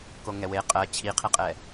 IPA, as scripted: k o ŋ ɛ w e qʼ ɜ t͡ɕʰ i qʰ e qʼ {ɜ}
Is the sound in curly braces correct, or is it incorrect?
incorrect